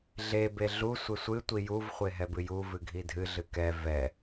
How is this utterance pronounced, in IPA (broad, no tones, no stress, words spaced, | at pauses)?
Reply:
ɮe beɮu sʷesʷɨ tʷijuv χʷeɦɛbɨju vɨɡʱidʱɨ ɮɨkɛ vɛ